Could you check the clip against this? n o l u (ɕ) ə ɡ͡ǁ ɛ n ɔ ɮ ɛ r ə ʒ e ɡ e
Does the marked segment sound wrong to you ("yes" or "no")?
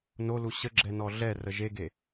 no